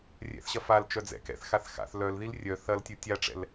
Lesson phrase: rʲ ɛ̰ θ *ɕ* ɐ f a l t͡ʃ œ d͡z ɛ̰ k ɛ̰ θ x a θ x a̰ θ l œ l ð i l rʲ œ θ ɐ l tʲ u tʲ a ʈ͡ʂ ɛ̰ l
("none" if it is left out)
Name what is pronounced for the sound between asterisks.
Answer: ɕ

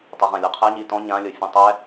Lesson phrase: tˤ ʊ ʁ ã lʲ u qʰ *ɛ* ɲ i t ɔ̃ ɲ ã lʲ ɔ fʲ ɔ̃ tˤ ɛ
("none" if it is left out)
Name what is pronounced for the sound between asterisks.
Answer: ɛ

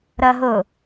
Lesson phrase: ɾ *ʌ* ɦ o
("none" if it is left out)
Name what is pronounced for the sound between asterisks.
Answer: ʌ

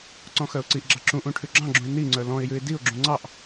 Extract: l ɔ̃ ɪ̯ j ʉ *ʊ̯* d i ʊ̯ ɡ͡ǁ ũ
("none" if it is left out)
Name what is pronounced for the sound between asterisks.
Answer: ɪ̯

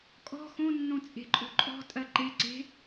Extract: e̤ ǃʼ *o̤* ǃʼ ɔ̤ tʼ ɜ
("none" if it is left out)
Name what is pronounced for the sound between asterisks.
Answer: o̤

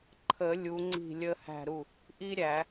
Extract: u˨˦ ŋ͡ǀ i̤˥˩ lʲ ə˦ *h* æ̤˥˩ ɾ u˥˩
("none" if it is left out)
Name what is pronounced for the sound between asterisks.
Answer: h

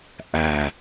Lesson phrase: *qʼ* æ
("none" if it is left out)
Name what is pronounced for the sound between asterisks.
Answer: ʔ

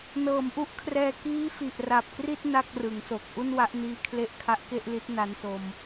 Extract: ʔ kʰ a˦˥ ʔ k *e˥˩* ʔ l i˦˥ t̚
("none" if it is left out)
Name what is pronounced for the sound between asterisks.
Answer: e˥˩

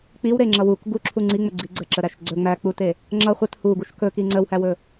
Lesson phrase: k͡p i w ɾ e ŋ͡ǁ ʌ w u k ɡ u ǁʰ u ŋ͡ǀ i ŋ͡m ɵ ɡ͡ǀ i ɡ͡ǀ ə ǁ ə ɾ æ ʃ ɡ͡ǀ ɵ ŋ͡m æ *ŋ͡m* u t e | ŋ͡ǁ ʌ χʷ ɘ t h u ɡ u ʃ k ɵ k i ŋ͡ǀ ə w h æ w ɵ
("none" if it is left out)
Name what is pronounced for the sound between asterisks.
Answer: k͡p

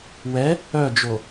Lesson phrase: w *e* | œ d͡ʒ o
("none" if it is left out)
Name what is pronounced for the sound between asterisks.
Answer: ɛ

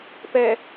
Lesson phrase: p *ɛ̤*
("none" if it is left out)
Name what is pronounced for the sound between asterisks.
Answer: ɛ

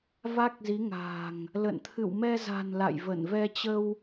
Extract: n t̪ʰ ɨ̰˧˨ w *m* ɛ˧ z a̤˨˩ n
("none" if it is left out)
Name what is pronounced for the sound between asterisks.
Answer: m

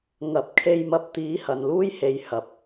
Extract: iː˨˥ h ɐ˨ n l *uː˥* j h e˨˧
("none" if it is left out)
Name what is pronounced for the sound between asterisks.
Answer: uː˥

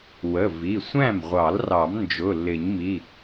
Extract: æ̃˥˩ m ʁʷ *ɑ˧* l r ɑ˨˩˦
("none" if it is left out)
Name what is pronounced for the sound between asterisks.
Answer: ɑ˨˩˦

